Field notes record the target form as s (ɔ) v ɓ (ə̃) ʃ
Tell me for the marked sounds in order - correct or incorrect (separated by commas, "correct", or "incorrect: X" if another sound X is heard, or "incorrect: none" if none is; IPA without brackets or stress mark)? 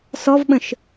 correct, correct